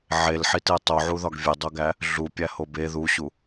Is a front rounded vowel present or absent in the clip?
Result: absent